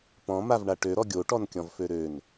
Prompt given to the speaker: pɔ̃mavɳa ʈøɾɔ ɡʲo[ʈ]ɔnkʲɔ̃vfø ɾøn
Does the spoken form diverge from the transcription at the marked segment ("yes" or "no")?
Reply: no